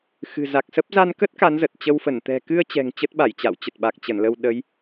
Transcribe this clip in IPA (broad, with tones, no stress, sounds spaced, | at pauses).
x ɨ̤˨˩ z a˨˩ k̚ s ə˦˥ p̚ z a˧ n k ə˦˥ t̚ k a˨˦ n z ə˨˩ t̚ t͡ɕ ə˧ w f ə˧˩ n t̪ ɛ̤˨˩ k ɨ˧ ə̯ t͡ɕ ɛ̤˨˩ ŋ t͡ɕ ə˦˥ t̚ ɓ a˧˩ j t͡ɕ a̰˧˨ w t͡ɕ ə˨˩ t̚ ɓ a˨˩ k̚ t͡ɕ ə˧˩ n l ə˧ w ɗ ə˨˦ j